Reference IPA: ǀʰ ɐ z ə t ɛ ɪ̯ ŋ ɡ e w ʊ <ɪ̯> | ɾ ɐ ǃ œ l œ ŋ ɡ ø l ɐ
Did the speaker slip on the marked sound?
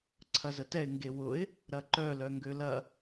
no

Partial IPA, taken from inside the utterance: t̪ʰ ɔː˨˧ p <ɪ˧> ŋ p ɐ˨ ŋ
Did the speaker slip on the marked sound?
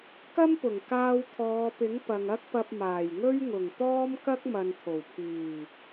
yes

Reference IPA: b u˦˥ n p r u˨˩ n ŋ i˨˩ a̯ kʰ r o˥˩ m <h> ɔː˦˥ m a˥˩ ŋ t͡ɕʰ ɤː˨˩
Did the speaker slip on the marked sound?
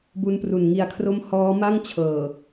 no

